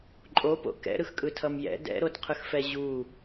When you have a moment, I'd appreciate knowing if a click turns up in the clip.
yes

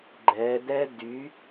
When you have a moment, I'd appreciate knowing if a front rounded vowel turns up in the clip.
yes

